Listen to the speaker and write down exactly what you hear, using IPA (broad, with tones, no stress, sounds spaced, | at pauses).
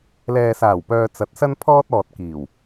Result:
l ɛː˨ s aː˨˩ w p œː˨ t͡s ɐ˨˥ t̚ s ɐ˥ n pʰ ɔː˥ t̚ ɔː˨ t̚ k iː˨˩ w